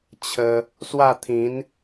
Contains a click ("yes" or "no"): no